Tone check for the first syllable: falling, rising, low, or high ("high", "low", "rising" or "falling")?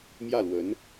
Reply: falling